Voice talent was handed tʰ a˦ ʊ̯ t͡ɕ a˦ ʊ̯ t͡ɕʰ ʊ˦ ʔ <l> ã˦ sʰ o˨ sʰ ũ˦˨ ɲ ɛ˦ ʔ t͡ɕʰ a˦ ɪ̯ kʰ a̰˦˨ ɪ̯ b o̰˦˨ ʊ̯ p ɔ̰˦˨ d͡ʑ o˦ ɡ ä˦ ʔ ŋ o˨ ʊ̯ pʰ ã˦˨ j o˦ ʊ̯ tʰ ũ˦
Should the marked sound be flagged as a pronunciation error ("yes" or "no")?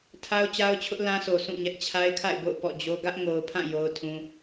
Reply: no